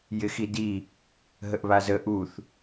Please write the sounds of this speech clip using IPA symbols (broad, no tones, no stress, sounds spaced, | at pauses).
j ɪ x i d i | ɦ ə ʔ β a z ə ʔ u θ